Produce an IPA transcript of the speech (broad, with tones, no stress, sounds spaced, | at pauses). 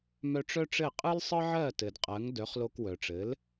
m œ˧ ʈ͡ʂ œ˥ ʈ͡ʂ ɘ˥˩ qʼ ɯ˥ l sˤ ɯ˥ ʕ ɜ˥˩ t ɘ˩ d qʼ ɜ˩˥ ŋ d œ˩˥ χ l o˧ k w œ˩ ʈ͡ʂ ɘ˩˥ l